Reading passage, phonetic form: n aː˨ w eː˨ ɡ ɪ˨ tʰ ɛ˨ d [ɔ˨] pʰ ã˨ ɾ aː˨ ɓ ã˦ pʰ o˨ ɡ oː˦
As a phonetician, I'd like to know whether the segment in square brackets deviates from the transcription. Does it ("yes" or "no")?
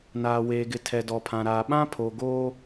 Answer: no